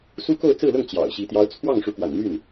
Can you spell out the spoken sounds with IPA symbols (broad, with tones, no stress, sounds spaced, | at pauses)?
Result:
s u˥ k o˥˧ ʊ̯ t͡s ɹ̩˥˧ l ʊ˥˩ ŋ t͡ɕ j ɑ̰˨˩ ʊ̯ ɕ i˧˥ t̪ j ɑ˧˥ ʊ̯ t͡sʰ w ɑ˥˩ ŋ ʂ u˧˥ k w a̰˨˩ n m y˥˩ n